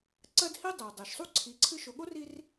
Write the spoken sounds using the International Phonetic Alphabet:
ǀ ɜ˦ d h i˦ dˤ ɛ˩ dˤ ɜ˩ ʃ sˤ u˥ ǀʰ i˨ ǀʰ ɨ˦ ʃ o˨ ɠ o˥ r i˦ r

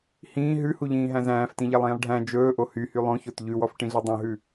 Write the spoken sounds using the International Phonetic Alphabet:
h ĩː ɦ ʉ h u ʎ ĩː ɦ æ̃ z æ̃ː f t ĩ ʎ æ lˠ ĩː lˠ ɖʱ æ̃ d͡ʒ ɵː ʔ o h y h y lˠ õ ç o t ʎ ʉ w ɔ f ʈ ĩ ɮ i dˤ õ ɦ ʉ

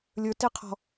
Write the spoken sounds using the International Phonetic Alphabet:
lʲ ə˞ t e qʰ ɔ̤

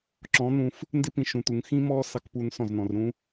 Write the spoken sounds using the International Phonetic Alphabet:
ǁ ɔ̃˨˦ n̪ ũ˧ f | n d ɪ˦ p ĩ˧ ʃ ũ˧ t̪ u˧ ŋ x ĩ˦ m ɔ˦ s ɑ˧ k p u˧ n s ɔ̃˦˨ z n ɔ̃˧ r ɾ ũ˦

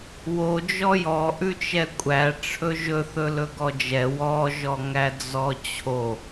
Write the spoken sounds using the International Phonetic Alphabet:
w o d͡ʒ ɔ j ɔ ʔ ʉ t͡ʃ ɛ kʷʼ æ ʈ͡ʂʰ ɵ ʒ ɵ θ ɵ l ɵ ɡ ɔ d͡ʒ ɛ w ɔ ʒ ɔ ŋ æ d͡z ɔ t͡ɕʰ o

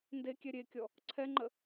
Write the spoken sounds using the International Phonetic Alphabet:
n d e kʲ ɛ ɾʲ e kʲ ɔ | ǀʰ ɛ ŋ͡ǃ ə

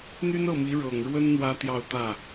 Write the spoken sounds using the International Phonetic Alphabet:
n̪ y˥ n ɤ˥˩ m i˧˥ ɻ ɤ˨˩ ŋ ɻ w ə˥ n n̪ w ä˥ t̪ j ɑ˥˧ ʊ̯ t̪ ä˥˩

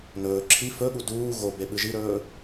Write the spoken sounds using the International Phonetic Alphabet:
n ɵː ǁʰ i f ɵ ɠ u d uː ɣ o b e ɓ ɨ ʒ i ɾ ɵː

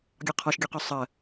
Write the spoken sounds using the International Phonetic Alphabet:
ɡʲ ɒ qʰ ɒ ʃ ɡʲ ɔ q ɔ sˤ ɜ

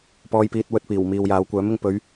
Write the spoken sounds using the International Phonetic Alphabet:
p ɔː˧ j p iː˧ t̚ w ɵ˧ t̚ p iː˨˩ w m iː˨ w j aː˨˧ w kʷ œː˨˥ m ɪ˨ ŋ p ɵ˨˧ ɥ

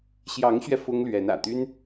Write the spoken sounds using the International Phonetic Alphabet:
ɕ j ɑ˧˥ ŋ ɕ ɥ ɛ˧ f ʊ˥ ŋ l ɥ ɛ˧˥ n ä̰˨˩ t̪ y˥ n

